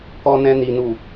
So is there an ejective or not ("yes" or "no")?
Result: no